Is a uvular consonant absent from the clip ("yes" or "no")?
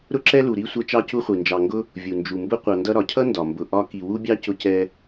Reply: no